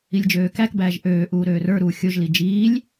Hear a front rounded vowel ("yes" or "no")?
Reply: yes